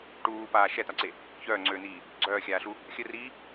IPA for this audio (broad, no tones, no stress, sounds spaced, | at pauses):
ʈ uː p aː ʃ ɛ t̪ a ǀ e | ç œː ŋ͡ǀ øː n̪ iː | ɡ͡ǀ œː xʲ aː ɬ u | xʲ ə r iː